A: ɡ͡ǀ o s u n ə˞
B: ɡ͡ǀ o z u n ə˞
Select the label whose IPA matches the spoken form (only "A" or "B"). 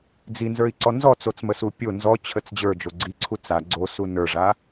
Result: A